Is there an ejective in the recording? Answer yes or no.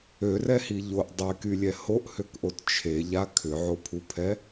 no